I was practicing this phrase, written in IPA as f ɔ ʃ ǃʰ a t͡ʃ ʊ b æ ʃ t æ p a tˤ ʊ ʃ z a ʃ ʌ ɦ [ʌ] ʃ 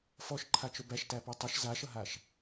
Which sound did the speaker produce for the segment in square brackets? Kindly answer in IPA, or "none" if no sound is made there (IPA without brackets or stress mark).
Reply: a